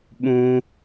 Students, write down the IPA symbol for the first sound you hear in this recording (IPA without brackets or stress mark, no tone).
ɓ